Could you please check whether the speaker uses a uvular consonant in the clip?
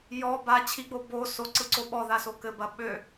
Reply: no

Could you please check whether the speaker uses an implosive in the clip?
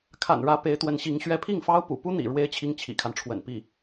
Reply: no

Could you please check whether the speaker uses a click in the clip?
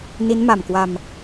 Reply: no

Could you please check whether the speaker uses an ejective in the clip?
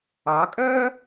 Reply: yes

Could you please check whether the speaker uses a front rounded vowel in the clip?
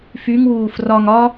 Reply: yes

